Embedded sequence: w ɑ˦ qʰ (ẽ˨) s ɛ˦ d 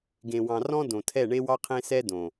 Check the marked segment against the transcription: incorrect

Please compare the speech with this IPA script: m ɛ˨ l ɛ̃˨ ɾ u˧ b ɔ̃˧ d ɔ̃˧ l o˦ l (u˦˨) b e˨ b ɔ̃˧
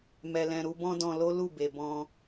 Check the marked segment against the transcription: correct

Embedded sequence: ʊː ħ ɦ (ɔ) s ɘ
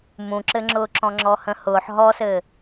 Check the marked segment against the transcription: correct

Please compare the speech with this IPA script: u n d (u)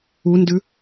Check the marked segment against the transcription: incorrect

